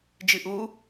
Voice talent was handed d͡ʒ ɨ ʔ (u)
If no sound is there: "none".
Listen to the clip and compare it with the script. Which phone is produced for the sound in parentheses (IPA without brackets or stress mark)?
u